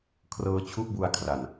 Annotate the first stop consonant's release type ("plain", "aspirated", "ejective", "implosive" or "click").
aspirated